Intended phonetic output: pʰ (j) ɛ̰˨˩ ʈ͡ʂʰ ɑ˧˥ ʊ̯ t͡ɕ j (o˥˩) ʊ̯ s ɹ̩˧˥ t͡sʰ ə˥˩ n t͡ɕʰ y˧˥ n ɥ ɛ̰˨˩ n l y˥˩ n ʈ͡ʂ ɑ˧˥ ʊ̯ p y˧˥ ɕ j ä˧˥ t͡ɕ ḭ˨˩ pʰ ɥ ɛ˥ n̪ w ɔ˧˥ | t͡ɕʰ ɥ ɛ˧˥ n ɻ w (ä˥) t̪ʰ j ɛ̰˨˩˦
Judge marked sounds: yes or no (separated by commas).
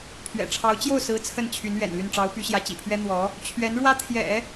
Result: no, yes, yes